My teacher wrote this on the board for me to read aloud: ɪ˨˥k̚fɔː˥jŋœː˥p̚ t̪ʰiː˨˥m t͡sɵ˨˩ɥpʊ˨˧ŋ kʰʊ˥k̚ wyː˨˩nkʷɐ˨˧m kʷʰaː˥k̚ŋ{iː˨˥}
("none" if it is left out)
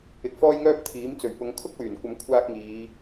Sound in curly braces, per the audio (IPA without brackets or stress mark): iː˨˧